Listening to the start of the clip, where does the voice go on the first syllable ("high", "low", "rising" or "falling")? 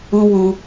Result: high